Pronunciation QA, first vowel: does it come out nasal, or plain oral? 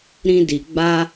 nasal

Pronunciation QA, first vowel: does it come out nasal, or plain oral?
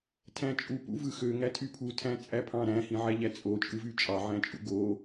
nasal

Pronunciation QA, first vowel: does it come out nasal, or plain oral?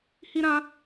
oral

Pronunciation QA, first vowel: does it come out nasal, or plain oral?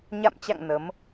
oral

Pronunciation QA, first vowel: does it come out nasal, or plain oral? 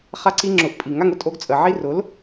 oral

